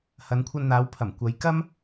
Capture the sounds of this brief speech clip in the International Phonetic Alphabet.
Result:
h ɐ˨˧ n kʷʰ ɐ˧ n n̪ aː˨˧ w pʰ ɐ˨˩ m kʷ ɐ˨˧ j k ɐ˥ m

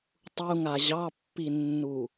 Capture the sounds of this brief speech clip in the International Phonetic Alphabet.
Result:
tˤ u ŋ a ʑ ɑ pː i nː u

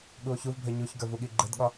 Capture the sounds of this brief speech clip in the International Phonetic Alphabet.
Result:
ɠ u o̯ ç u v bʱ ə˞ ɲ u ç ɡ ə˞ v u ɠ i ɡ͡ǃ ɘ d ɠ ɒ

